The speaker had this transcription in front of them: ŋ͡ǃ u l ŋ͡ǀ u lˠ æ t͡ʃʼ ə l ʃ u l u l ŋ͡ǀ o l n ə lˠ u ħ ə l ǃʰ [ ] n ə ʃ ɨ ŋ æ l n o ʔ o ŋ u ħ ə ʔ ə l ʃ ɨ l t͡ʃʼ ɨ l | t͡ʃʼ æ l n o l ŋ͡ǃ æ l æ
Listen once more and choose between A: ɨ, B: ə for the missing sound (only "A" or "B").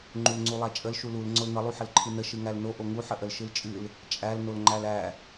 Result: A